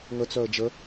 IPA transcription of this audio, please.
ŋ ə t͡s œ ə̯ d͡ʒ ə

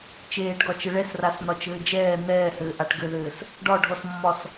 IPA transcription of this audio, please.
t͡ʃ eː ʈ ɡ ɒ t͡ʃ ɘ ɭ ɛ s r a s n̪ ɒ t͡ʃ ɘː d͡ʒ ɛː n̪ ɛː h ɘː ʔ a ʈ ɡ ɘ ð ɘː s | ɖ ɒ ɖʱ ɔ s mː ɒ s

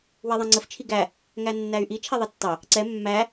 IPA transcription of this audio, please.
w ɛ ðˤ ɛ̃ ŋ͡ǀ ə f t͡ʃʰ i ɡ æ | ŋ æ nː æ y̯ ʔ i t͡ʃʰ ɛ ðˤ ʌ tː ɑ | ǀ ɛ mː æ

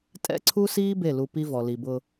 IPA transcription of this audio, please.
tʼ ɛ̰˦ ǀʰ u˦ s iː˦ b e˦˨ l u˨ p i˦ v ɔ˨ l i˨ b ʊ˦

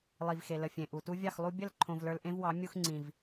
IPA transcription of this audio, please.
lˠ i˨ v x e˨ l ə˨ fʲ ẽ˨ ʔ u˨ t u˦ vʲ ɑ˦˨ x lˠ u˧ bʲ ə˦˨ l ǃʰ õ˧ v l ə˞˧ l ʔ ẽ˦ v w ɑ˨˦ mʲ u˧ x ŋ͡ǀ ĩ˨ v

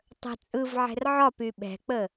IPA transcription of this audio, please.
tˤ ə̤ t͡sʼ ɯ v ʕ ɛ̤ r ʕ ɒ p y ɓ ɛ̤ k͡p ə

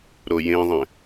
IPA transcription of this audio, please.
ɾ o j ẽ ðˤ ɛ̃

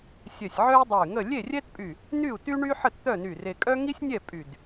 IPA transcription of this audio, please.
sʲ œ˧˩ sʲ ʕ œ˥ y̯ dˤ ɛ˧˩ y̯ ŋ ə˥˨ lʲ e˥˨ rʲ ɛ˥ t pʼ y˧˩ | n y˥˨ u̯ t y˥ ɳ y˥ ħ ə˥˨ t t̪ œ˥˨ n y˧˩ r e˧ kʼ œ˥ ŋ i˥ sʲ nʲ ɛ˥˨ pʼ y˧˩ d

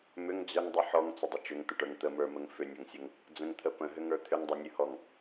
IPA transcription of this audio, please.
m ʏ ŋ d͡z ʏ ŋ dˤ ə ħ ɔ ŋ t͡s ə dˤ ə t͡ʃ ʏ ŋ t̪ ə ʈ ə˞ ŋ t̪ ə m ə˞ m ə ŋ f ʏ nʲ ɔ ŋ sʲ ə ŋ | d͡z ə̃ ŋ t̪ʰ ə p ə̃ ɦ ʏ ŋ ə˞ t̪ʰ ʏ ŋ dˤ ʏ nʲ ɨ h ɔ ŋ

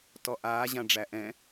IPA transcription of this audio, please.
t ɔ ʔ aː ʑ ã ɖ͡ʐ æ ʔ ɛ̃

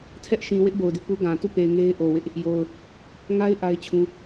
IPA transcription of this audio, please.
tʰ ɛ˦ ʔ ʃ ĩ˨ w ɪ˦ ʔ b o˨ ʊ̯ d ɪ˦ ʔ p u˦ ɡ ã˨ t u˦˨ p e˨ ɪ̯ ŋ e˦ ɪ̯ ʔ o˨ w ɪ˦ ʔ | j o˨ ʊ̯ | ŋ a˦ ɪ̯ ʔ a˦ ɪ̯ t͡ɕʰ ũ˦

